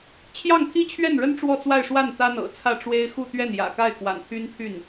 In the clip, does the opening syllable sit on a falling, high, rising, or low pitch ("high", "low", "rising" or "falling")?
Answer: falling